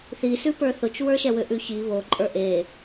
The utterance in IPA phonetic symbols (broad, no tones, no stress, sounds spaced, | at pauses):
θ i s ʉ p ə˞ θ ʊ t͡ʃ w ə˞ ʃ ɛ w ʏ ʔ ʉ ç i β o ǃʼ ə˞ ʔ e